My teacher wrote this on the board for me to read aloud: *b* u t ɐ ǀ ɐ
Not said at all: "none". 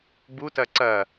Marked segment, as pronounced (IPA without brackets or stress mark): b